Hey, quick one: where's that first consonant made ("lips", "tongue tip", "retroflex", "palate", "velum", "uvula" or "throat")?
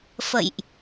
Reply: lips